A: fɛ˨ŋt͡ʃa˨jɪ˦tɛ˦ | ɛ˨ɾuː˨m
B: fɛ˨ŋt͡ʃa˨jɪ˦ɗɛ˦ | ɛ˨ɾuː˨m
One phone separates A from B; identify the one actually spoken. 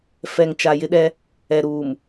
B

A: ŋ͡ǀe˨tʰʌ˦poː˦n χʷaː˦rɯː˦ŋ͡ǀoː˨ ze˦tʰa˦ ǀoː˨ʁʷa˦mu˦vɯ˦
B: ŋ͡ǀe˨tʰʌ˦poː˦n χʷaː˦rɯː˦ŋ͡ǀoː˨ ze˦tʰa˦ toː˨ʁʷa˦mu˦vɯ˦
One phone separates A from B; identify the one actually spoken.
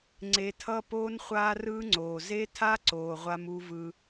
A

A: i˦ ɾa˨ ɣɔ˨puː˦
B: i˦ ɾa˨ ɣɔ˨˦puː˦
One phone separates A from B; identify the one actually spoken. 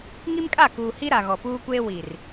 A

